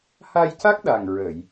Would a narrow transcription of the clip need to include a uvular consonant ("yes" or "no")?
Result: no